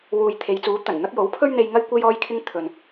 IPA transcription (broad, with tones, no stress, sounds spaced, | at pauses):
w uː˨ j t̪ʰ e˨˧ j t͡s uː˨˥ t̪ ɐ˨˩ n n̪ ɐ˥ k̚ j o˨˥ w pʰ ɵ˥ ɥ n̪ e˧ j ŋ ɐ˥ j kʷ e˥ j ɔː˥ j kʰ ɪ˥ ŋ t̪ʰ ɵ˨ n